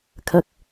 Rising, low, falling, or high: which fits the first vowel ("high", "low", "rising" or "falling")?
low